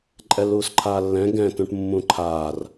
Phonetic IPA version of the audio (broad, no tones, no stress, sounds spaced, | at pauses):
ǃʼ ɛ l uː s ǃʰ aː lː ɛ̃ ɡ ɛ̃ t ũ ʈ mː ũ ǃʰ aː r